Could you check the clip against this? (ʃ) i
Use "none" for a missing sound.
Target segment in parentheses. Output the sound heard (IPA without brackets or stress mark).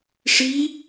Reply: ʂ